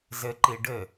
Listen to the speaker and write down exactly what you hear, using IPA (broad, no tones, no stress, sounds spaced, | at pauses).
z ɘ ǃ i ɖ ɘ